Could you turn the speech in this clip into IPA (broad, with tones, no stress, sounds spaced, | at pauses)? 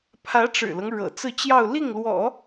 pʰ ä˧˥ ʈ͡ʂ ɻ̩˨˩ l ɤ˦ ŋ ɻ ɤ̰˨˩ t͡s ɹ̩˥˧ t͡ɕ j ɑ˥˧ ʊ̯ l i˥˩ ŋ l w ɔ̰˨˩˦